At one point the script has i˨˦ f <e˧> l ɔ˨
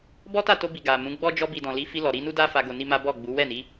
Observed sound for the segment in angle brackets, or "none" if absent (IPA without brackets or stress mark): i˧